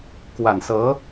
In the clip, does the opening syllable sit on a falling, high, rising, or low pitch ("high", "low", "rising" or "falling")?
low